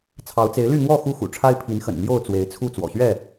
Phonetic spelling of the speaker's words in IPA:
t͡sʰ ɑ˨˦ ʊ̯ t͡s e˨˦ ɪ̯ l y˥˨ n̪ w ɔ˥˨ x u˦ x ṵ˨˩ ʈ͡ʂʰ a˦ ɪ̯ pʰ i˨˦ n x ə̰˨˩ n m j o˥˨ ʊ̯ t͡s w e˨˦ ɪ̯ t͡sʰ u˥˨ t͡s w ɔ̰˨˩ ɕ ɥ ɛ˥˨

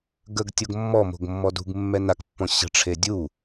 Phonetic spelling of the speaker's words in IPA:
ɡ ə ɡ tʲ o ɡ mː ɔ m o̤ ɡ mː ɔ d ṳ ɡ mː ɛ n a k pː ɔ̃ ɕ ə̤ ʈ͡ʂʰ e dʲ u

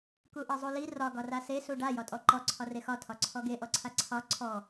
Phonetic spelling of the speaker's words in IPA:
k u ʔ e zˤ u l i r ɒ ɡ ɒ r a s e s u ɖ a j ɒ tʼ ɔ ǃ ɔ ǀʰ ɒ r e x ɒ tʰ ɒ ǀʰ ɔ ɡ e ʔ ɔ ǀʰ a ǀʰ ɒ ǀʰ ɔ

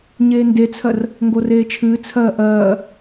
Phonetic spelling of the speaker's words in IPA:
ɲ eː n d e t͡sʰ ɜ r | ŋ ɡ o r eː t͡ʃʰ ɨː t͡sʰ ɜː ʔ ɜː

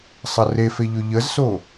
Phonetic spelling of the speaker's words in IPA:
sˤ ɐ r e f e ʎ ɵ ʎ ə z s o

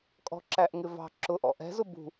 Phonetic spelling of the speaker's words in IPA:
kʼ ɔ̤ ǁ æ ʔ ŋ ɪ v ɑ̤ ǁ ʊ ʔ ɔ̰ ʔ ɛ̤ z ʊ b ṳ

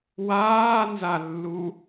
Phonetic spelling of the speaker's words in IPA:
w aː n z a lː u

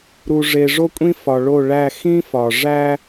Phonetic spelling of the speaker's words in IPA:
ɾ u˨ ʐ e˨ ʐ o˦ kʷʼ ĩ˦ f ɒ˨ ɭ o˦˨ ɭ æ˦˨ x ĩ˦ f ɒ˨ ʐ æ˦

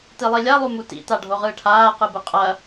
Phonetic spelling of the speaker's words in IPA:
t i lˠ i lʲ a lˠ u m u t ḭ t a ɖʱ o ʁ ɯː ʈʰ aː q ɯ b ɯ qʼ ɐ

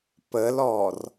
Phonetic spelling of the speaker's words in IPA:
p ə l ɔ r

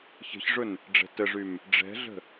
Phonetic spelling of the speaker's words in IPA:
ç ə̤ ç ʐ ʊ n | ɖ͡ʐ ɛ̤ t ə ʐ y m | ɖ͡ʐ ɛ̤ ɮ ə̤

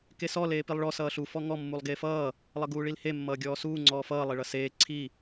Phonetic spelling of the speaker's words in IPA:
k e s ɔ l eː p i lˠ ɭ ɔ s ʌː ɬ u f ɔ ŋ ɔ mː u lˠ ɡ eː f ʌː | lˠ ʌ ɡ uː ɭ i l h e mː ʌː ɡʲ ɔː s uː ŋ͡ǀ ɔː f ʌː lˠ e ɭ ʌ s eː ǀʰ i

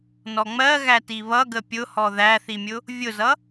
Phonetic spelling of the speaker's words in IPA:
n ɔ ŋ͡m ɜ ɣ æ t i β ʌ ɡ ə pʲ ʊ h ɔ ð æ θ i mʲ ʊ | vʲ ʊ z ʌ

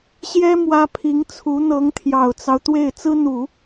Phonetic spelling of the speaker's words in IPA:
ɕ j ɛ˥ m w ä˥ pʰ i˧˥ ŋ t͡sʰ u˧˥ n̪ ɤ˧˥ ŋ t̪ʰ j ɑ˨˩ ʊ̯ t͡s ɑ˦ ʊ̯ t̪ w e˥˩ ɪ̯ t͡s ɹ̩˥ n̪ u˨˩˦

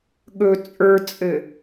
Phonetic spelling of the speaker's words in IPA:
ɠ ɵ t͡sʼ ə˞ t͡sʼ ɘ

